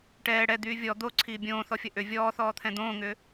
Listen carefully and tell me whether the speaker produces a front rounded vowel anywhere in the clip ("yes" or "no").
yes